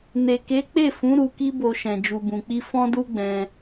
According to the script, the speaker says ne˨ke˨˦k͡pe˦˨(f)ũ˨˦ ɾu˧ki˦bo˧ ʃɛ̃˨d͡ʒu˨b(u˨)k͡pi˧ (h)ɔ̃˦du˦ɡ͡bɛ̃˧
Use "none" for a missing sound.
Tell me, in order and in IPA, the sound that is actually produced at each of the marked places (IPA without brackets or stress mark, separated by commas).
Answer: f, ũ˨, f